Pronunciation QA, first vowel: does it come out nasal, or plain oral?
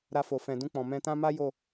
oral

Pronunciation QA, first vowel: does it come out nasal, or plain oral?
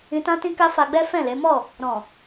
nasal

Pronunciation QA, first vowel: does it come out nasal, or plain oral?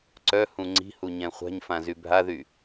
oral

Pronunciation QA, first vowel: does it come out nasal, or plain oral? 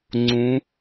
nasal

